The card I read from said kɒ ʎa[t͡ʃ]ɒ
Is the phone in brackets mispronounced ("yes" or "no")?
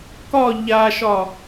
yes